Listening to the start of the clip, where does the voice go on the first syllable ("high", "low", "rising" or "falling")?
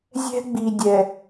high